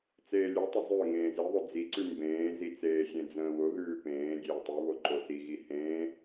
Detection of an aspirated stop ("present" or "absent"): absent